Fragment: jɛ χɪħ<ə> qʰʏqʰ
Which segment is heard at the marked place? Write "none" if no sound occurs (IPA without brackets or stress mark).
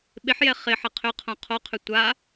ə